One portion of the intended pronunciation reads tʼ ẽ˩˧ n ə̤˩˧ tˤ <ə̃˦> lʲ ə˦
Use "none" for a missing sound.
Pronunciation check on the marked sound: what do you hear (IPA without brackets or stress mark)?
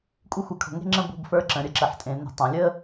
ə̃˩˧